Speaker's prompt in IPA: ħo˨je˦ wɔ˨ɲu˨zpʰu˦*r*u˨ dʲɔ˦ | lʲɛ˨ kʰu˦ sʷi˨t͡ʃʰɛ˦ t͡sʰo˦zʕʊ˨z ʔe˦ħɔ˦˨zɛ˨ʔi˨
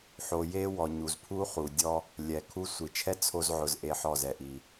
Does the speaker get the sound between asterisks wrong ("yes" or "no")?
yes